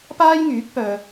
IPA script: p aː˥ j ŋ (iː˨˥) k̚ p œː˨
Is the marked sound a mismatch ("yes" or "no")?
yes